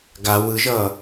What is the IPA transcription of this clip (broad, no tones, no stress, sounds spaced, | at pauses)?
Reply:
ɡ a w ɯ ʒ ʌː